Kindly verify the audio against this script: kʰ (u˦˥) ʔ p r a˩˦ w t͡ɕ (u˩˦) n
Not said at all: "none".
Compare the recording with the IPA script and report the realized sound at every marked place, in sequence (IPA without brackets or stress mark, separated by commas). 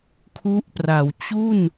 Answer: u˦˥, u˥˩